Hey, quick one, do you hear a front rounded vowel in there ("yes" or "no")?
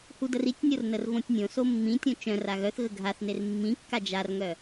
yes